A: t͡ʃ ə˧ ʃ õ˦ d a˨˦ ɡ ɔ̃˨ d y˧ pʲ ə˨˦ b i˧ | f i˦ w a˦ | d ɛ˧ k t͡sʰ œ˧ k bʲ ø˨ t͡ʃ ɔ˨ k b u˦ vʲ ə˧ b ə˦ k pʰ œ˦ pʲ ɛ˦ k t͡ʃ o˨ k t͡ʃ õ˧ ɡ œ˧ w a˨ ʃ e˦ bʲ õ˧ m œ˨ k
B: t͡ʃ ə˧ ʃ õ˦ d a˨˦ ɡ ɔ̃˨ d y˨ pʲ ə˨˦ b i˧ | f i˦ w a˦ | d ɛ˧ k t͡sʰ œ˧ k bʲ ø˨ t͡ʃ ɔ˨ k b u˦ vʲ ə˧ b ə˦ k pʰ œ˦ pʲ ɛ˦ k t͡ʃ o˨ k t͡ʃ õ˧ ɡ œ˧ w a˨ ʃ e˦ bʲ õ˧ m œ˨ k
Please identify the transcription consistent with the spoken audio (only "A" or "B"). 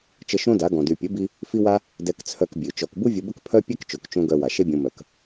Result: B